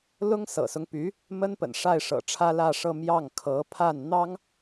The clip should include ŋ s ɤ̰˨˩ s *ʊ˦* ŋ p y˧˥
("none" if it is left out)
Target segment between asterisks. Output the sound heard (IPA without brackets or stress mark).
ʊ˦